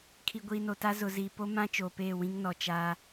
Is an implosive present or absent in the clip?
absent